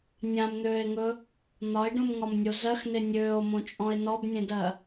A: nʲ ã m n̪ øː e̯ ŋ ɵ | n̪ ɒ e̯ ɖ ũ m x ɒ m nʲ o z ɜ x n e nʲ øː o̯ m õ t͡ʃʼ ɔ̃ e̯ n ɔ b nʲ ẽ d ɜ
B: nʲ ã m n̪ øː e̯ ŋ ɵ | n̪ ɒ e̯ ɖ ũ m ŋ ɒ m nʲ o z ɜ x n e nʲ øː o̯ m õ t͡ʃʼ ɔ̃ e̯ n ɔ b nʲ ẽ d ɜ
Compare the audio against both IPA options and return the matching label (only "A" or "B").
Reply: B